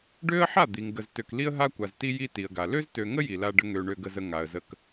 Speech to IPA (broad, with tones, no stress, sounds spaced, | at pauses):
ɖ ø˦ ə̯ ħ a˦˨ d̪ i˨ ŋ ɡ ə˨ z t ø˨ k l i˦ ə̯ ɦ a˦ kʷ a˨ z t i˦ j i˦ t i˨ ə̯ ɡ a˨ l ø˦ z t ø˨ ŋ ə˦ j i˨ l a˦ ɖ ə˦ ŋ ø˨ ɳ ø˦ ɡ ə˦ z ə˦ ŋ a˨ ə̯ z ə˦ k